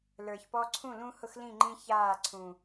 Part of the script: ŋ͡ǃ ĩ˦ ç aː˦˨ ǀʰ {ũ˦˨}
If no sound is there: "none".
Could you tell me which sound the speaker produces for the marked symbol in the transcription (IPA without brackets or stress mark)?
ũ˨